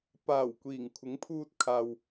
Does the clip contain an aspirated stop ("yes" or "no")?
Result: yes